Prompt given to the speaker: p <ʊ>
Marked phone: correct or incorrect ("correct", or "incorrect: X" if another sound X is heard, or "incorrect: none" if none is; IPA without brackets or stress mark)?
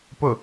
correct